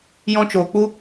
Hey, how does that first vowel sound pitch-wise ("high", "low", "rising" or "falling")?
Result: high